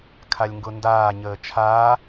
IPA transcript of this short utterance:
kʰalʲŋɡʊndaː ɲəːt͡ʃʰaː

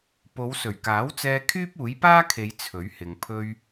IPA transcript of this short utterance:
po˨˧wsɵ˨˩ɥkaː˨˥wt͡sɛː˧ kʰyː˥p̚uː˨˥jpaː˥kʰe˨˧j t͡sʰɵ˨˥ɥhɪ˨ŋ pʰɵ˧ɥ

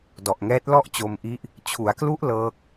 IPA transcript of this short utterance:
dɔ˨˩ʔŋɛː˦˥t̚ lɔ˥˩ʔt͡ɕo˧mʔi˦˥ʔ | t͡ɕʰu˩˦a̯klu˦˥ʔ lɤː˦˥k̚

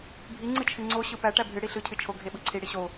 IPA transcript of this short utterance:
bʱi ŋ͡ǀɨt͡ʃʰɨŋ͡ǀo ɕɯpæ ʈæbʱɨ ɽiɬɯ cʰɨt͡ʃʰo ɡʱeɓɯǀʰi ɽiɕo

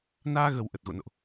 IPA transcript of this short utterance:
naː˧ɣə˨˩w ʔə˨˩t̚ɣo̰˧˨no̰˧˨ʔ

